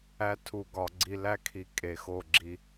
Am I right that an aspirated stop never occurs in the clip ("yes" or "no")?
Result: no